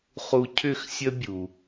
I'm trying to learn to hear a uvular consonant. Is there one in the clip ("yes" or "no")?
yes